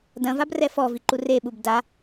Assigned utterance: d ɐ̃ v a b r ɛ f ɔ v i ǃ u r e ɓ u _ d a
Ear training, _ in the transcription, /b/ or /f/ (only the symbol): b